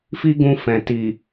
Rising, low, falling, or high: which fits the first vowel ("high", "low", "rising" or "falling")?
high